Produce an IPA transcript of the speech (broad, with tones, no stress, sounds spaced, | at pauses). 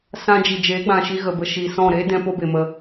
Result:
s ã˧ d͡ʒ i˨ d͡ʒ eː˨˦ ɡ͡b ã˨ ʃ i˧ ɣ ə˨ b ə˧ ʃ iː˨ s ɔ̃˦˨ ɾ eː˦ d ɛ̃˦ p o˦ b e˨ m ə˧